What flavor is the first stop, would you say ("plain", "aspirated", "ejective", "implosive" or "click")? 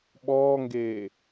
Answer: implosive